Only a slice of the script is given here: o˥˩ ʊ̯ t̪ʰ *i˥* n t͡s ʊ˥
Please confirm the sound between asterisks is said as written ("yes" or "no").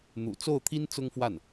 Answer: yes